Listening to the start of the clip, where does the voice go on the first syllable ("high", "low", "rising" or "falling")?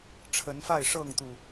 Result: rising